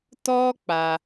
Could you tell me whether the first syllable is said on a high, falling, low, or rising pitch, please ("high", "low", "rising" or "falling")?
high